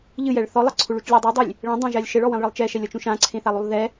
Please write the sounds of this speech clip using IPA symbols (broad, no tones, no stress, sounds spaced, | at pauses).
ʎ ɨ j ɛ ɭ θ ɔ lˠ ɐ ǀʰ u ɭ u t͡ʃ lʲ ɨ dˤ ɨ dˤ i lʲ | ɭ ẽ dˤ ã ʒ a lʲ ʃ ɘ ɭ ɔ w ẽ lˠ ɭ ɨ lˠ t͡ʃ ɛ ʃ ɛ lʲ ɔ t͡ʃ ũ ʃ ã ǀʰ ẽ θ a lˠ u lˠ ð ɛ